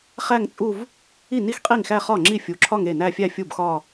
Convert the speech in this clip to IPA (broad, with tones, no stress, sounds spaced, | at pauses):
χ æ˥˧ ŋ t͡sʼ u˥˧ v | i˥˩ n i˥˧ x qʼ i˥˩ ŋ x æ˥˧ χ ɒ˥˩ ŋ͡ǁ i˥˩ fʲ u˨˥ ǁʰ ɒ˥˧ ŋ e˥˩ n æ˥˧ fʲ æ˥˧ fʲ u˥˩ b x ɒ˥˧